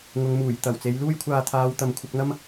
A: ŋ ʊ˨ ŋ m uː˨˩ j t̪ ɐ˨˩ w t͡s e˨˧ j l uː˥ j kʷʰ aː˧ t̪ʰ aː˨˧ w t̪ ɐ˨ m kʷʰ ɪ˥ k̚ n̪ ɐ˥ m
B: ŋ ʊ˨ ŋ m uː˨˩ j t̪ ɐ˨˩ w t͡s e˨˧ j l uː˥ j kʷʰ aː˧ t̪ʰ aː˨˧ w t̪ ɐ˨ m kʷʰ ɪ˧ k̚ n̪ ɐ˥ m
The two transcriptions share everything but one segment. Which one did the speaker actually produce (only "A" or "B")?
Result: B